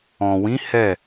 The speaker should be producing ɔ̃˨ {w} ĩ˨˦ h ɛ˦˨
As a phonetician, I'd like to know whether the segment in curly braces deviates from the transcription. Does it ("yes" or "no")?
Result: no